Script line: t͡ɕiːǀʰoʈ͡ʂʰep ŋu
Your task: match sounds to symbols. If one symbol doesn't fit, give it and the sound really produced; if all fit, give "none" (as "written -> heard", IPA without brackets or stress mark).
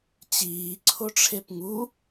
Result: none